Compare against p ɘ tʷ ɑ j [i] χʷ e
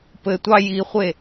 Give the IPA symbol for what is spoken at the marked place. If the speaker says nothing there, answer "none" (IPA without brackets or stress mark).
i